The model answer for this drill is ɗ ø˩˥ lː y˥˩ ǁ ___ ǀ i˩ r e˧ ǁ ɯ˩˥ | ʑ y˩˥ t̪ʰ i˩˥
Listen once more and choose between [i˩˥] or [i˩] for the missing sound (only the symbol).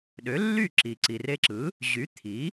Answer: i˩